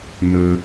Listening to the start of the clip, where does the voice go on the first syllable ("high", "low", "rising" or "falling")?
low